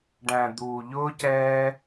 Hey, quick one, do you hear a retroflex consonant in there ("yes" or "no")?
yes